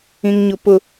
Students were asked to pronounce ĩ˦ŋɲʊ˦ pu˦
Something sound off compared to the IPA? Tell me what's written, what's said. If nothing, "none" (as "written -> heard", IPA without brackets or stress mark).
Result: u˦ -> ʊ˦